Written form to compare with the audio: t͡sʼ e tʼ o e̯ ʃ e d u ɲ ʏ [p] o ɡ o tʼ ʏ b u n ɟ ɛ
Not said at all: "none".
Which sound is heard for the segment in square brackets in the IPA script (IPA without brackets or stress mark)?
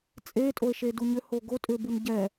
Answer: h